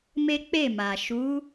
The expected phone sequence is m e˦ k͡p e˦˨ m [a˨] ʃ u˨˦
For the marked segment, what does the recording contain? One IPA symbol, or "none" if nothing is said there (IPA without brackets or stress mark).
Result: a˨